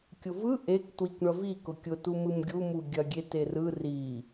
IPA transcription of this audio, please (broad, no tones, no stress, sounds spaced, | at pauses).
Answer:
kʲ ʊ v ɯ ʔ e k t w i kʷ ɳ ɐ v i k ʊ kʲ ʊ t u m ɯ m ɡʲ u m u ɡʲ ɐ ɡʲ e t e r ɯ r i